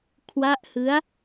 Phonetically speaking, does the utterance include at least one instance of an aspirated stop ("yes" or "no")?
yes